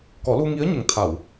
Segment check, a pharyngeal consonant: absent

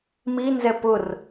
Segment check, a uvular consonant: absent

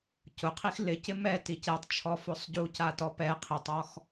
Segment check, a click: absent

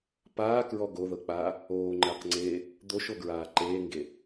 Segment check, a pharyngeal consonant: absent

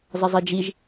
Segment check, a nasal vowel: absent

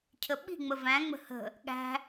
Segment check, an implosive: present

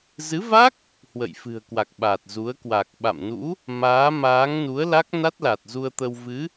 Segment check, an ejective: absent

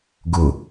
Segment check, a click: absent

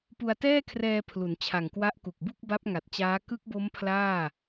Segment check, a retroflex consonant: absent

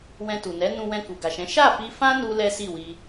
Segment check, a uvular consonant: absent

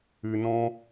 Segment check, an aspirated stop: absent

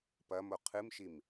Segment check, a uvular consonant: present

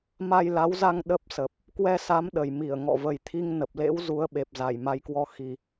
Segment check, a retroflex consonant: absent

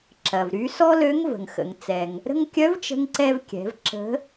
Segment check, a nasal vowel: absent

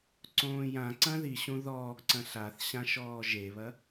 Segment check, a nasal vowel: present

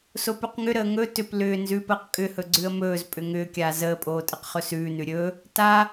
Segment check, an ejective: present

